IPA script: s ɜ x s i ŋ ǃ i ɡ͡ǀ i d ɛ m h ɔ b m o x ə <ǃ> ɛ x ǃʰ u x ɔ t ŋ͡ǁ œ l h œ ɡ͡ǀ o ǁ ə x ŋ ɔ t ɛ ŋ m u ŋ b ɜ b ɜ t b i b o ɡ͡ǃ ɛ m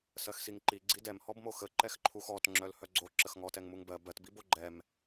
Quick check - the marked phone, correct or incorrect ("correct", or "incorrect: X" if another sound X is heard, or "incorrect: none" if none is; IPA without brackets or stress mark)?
correct